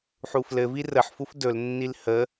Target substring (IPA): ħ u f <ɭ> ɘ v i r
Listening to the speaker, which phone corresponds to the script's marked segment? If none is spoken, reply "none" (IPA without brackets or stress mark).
l